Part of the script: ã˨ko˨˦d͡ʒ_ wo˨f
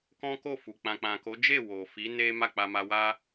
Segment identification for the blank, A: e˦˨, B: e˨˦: A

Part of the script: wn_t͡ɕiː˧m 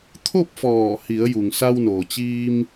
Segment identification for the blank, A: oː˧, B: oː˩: B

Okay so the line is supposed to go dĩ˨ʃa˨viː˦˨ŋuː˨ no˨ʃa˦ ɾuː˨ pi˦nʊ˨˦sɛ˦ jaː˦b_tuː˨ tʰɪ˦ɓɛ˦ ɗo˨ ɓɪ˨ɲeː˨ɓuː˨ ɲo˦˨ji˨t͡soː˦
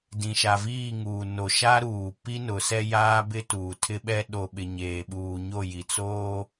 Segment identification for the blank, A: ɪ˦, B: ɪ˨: A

